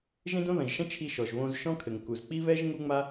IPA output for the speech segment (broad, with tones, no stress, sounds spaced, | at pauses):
ʒ ẽ˥ d õ˥ ð ɐ̃˩ ʒ ʃ ɐ̃˥ t͡ʃʰ i˧ ʃ ɔ˩ ʒ β õ˧ z ʃ ɔ̃˥ kʰ ɘ˩ ŋ k u˩ z k͡p i˥ β ɛ˥ ʒ ŋ u˥ ŋ͡m a˥